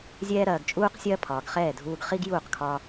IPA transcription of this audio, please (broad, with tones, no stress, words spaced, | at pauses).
zʲɛː˥ɾɐː˧ɡt͡ʃʼuː˥qsʲɐː˥ pʰɒː˩ɡχɛː˥˩dʱuː˧ɡ χi˥ɡ juː˥˩qkʰɒː˧